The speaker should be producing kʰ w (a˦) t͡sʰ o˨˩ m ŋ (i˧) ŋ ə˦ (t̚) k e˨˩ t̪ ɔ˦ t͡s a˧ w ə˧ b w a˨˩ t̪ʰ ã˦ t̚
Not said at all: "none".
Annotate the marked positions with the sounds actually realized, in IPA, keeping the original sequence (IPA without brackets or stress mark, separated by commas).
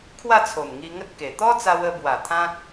a˥˧, i˧, t̚